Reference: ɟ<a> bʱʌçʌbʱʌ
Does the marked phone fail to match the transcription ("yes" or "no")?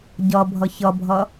yes